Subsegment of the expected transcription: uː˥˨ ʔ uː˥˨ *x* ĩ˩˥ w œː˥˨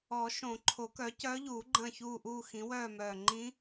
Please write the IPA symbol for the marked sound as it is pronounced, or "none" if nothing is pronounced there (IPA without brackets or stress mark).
x